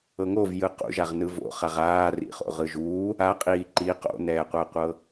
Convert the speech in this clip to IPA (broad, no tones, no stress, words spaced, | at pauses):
ɤŋovjɯ qṵʒaʁ nɯvo̰ χaʁaːrḭχo̰ ʁɯʒuː | aqʼiː ǃi qo̰nɛːqʷɛqʷɤ